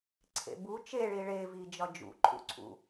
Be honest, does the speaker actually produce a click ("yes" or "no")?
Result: yes